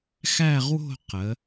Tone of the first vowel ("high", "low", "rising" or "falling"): falling